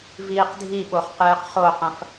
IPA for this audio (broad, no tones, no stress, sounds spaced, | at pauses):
v iː q dʱ i ɓ o χ q ɨː q χ o q ɐ̃ f